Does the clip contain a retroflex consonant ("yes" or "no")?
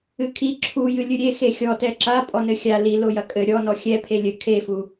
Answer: no